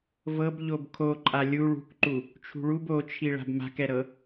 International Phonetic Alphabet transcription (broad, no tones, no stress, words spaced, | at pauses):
vɤb ʎobkʰoǃʼa lʲu ɭṳkǃu | t͡ʃʰṳɭub ot͡ʃʰi ɭa̤bma̤kɛɾɤ